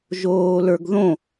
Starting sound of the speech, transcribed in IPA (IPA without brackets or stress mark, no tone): ʒ